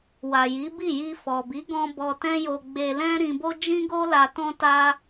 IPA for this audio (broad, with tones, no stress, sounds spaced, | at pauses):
w a˨ j i˨˦ b i˦˨ j i˧ f ɔ˨ b i˨˦ ɡ ɔ̃˧ b ɔ˧ t ɛ̃˦ j o˧ ɡ͡b e˧ l ɛ̃˦ ɾ ĩ˧ b o˦ d͡ʒ ĩ˦ ɡ o˦ l a˧ t ɔ̃˦ t a˦